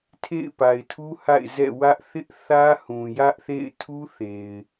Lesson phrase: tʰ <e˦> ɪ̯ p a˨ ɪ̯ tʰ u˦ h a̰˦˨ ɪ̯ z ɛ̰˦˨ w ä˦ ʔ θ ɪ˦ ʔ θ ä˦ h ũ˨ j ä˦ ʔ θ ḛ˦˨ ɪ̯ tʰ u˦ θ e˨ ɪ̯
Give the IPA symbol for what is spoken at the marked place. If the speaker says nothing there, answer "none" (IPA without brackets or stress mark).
ḛ˦˨